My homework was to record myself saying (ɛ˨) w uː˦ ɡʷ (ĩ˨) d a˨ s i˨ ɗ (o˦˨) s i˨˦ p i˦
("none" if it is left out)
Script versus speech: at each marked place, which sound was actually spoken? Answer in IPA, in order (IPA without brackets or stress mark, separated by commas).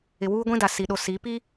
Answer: ɪ˨, ĩ˦, o˨